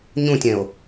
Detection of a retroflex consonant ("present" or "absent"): absent